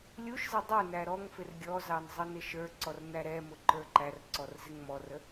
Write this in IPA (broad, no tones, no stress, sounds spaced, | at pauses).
lʲ u ʃ z ɪ dˤ ə˞ n æ ɾ ɔ ŋ f ɪ r ɡʲ ɔ z ɑ n zˤ ʌ n ɪ ʃ ə˞ ǀ ɔ r n æ ɾ ɛ m ʊ ǃ ə˞ ǃ æ r ǀ ɔ r z ɪ ŋ m ɔ r ə